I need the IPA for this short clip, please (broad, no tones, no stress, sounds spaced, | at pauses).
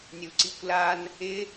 nʲ u ǀ i kʷ l a n | ɪ